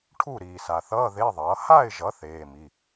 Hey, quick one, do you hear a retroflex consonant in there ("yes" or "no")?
yes